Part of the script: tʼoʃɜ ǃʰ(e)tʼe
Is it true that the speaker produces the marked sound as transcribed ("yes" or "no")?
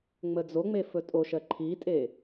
no